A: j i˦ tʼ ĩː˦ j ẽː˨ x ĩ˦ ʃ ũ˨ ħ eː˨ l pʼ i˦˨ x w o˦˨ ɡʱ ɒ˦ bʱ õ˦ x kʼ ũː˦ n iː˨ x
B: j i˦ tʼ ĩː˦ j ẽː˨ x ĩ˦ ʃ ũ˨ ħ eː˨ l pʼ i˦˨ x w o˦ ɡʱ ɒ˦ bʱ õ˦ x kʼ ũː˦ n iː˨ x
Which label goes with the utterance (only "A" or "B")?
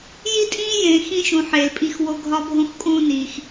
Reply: B